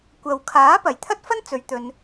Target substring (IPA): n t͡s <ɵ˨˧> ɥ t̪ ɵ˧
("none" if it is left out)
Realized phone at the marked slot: ɵ˨˧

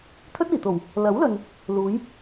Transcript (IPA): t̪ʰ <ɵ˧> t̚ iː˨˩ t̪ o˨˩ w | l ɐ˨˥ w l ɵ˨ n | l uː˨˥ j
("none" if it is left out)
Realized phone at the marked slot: ɵ˥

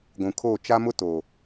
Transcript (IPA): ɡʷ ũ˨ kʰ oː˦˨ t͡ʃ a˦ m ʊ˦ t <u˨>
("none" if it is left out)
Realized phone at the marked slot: o˨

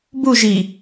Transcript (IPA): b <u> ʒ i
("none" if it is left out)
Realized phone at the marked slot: u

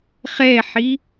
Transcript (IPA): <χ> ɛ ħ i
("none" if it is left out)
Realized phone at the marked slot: χ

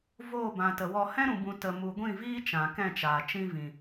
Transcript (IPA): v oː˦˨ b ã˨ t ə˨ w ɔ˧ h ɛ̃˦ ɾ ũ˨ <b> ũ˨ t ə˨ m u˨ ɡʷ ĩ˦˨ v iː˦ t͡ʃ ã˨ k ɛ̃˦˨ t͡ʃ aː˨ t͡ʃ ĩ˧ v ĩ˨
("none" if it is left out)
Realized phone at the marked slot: b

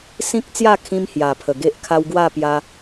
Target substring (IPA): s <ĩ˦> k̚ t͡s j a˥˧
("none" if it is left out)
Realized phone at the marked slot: ĩ˦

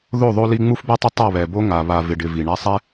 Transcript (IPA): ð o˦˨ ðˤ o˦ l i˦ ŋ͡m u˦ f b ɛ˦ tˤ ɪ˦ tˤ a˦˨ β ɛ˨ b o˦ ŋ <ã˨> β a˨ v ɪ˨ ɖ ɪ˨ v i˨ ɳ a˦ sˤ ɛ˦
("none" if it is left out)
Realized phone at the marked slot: a˨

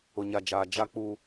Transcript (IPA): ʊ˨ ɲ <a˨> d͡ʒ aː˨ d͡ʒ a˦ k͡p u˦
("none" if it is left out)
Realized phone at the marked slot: a˨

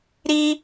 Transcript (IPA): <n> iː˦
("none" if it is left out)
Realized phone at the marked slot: ɾ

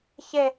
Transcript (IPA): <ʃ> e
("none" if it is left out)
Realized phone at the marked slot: ç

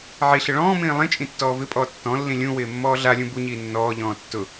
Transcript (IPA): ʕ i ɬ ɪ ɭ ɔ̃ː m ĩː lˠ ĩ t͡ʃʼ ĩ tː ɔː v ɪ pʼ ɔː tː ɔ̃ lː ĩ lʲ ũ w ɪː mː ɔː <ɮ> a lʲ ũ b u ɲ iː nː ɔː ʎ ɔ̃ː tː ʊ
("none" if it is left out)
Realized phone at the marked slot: ɮ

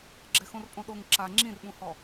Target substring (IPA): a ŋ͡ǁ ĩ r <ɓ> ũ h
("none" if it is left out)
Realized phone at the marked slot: ɓ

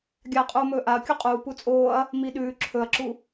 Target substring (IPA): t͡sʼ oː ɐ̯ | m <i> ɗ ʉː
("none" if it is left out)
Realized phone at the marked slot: i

